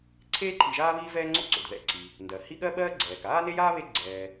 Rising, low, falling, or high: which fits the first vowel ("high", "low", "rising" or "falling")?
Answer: high